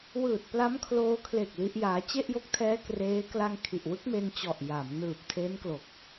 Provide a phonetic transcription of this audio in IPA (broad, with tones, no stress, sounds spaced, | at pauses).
w ɯː˨˩ t̚ p l a˦˥ m kʰ l oː˧ kʰ l e˨˩ k̚ l i˦˥ ʔ j aː˦˥ t͡ɕ e˥˩ ʔ j o˦˥ k̚ tʰ ɛː˦˥ k r eː˦˥ k l a˧ ŋ kʰ i˨˩ ʔ w ɯ˦˥ k̚ m e˧ n t͡ɕ ɔ˨˩ ʔ j a˩˦ m n ɯː˨˩ p̚ tʰ e˦˥ n k l o˨˩ k̚